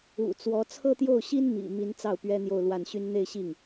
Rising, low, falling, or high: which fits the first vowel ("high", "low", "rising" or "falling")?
low